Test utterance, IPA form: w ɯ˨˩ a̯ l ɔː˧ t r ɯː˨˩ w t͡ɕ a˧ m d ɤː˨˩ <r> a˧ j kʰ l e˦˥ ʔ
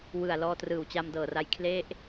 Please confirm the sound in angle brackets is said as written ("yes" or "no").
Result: yes